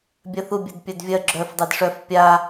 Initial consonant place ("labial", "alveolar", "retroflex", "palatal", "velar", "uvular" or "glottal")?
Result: labial